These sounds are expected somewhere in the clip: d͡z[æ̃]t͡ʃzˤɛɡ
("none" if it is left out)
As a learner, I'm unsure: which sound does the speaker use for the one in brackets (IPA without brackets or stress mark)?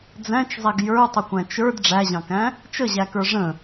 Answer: æ̃